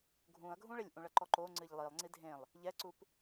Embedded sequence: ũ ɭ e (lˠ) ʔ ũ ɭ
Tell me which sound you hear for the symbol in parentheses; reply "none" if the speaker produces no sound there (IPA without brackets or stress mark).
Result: lʲ